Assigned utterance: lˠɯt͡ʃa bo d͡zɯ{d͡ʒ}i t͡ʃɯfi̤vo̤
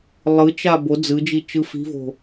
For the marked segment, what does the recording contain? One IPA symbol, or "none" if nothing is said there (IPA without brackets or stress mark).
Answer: d͡ʒ